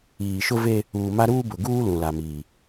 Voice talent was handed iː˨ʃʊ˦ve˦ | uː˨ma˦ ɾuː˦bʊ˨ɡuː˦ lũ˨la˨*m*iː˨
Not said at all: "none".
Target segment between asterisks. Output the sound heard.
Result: m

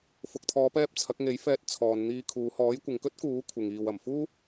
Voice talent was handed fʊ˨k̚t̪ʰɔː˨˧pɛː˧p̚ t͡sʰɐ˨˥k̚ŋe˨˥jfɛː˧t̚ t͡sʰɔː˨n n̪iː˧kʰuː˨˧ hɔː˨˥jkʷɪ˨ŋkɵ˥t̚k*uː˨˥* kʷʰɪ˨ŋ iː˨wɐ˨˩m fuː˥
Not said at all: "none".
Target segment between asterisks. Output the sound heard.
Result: uː˨˥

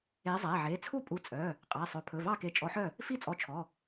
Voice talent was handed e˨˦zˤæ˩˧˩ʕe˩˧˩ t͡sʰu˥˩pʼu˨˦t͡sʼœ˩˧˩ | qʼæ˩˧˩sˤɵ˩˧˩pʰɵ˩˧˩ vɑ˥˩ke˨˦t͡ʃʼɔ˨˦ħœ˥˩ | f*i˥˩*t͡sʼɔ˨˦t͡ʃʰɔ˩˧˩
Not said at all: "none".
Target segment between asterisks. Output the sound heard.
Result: i˥˩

